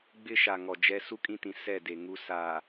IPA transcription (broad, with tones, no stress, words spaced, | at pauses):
ɡ͡bɪ˦ʃa˨ ŋɔ˨d͡ʒɛ˦ su˦kʼĩ˦tĩ˨ sɛ˦˨de˨ŋu˦ sa˨